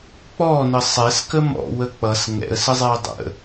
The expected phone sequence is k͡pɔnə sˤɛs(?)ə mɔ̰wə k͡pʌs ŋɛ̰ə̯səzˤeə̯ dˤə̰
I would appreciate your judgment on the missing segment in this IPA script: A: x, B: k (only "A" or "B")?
B